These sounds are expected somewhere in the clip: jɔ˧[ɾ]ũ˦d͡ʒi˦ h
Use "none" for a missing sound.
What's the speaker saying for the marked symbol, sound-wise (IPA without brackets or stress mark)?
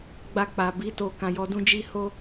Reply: d